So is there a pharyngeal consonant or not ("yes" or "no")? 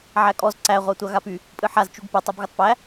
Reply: yes